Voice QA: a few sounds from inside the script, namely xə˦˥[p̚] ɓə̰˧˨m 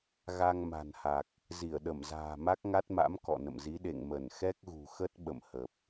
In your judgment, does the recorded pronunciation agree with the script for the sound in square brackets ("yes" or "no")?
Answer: no